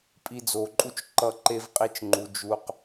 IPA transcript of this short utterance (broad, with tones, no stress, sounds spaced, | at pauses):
pʼ i˧ d͡z o˨ ǃʼ u˦ t͡ʃ ǃ ʌ˦˨ ǃ e˦ v qʼ i˦ t͡ʃ ŋ͡ǃ u˧ d͡ʒ u˦ q